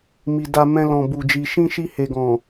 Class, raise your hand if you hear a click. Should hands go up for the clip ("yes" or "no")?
no